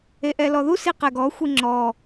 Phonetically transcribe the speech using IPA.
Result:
e ʔ ɛ l ɔ ð u s i q ɛ ɡ ɔ xʷ i ŋ͡ǁ ɔ

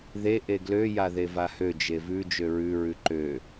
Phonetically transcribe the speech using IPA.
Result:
ð e ʔ e ɡ l ø j a ð e v a h ø d͡ʒ e v ʉ d͡ʒ ø ɹ ʉ ɹ ʉ ǃ ø

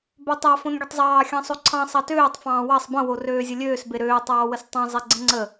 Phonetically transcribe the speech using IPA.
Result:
b ø tˤ ɑ f õ n ɡʲ ə tˤ zˤ ɑː xʲ ɑ̃ sˤ o ǀʰ ɑ̃ sˤ ɑ t øː tˤ f ɑ̃ː w ɑ sˤ b ə̃ w o r øː zʲ ə lʲ øː s b e ɾ øː tˤ ɑː w ə s tˤ ɑ̃ zˤ e ɡ͡ǀ ə̃ ŋ͡ǀ ə

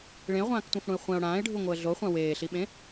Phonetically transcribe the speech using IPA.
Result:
ɭ ẽ ə̯ ʁʷ ãː k tʷ ã f ɽ ũ ɪ̯ χʷ ɛ̃ ʊ̯ ɽ ãː ɪ̯ ɖʱ u ŋʷ ɤ ə̯ ɮ o χʷ ã w eː ɬ i ɓ ẽ

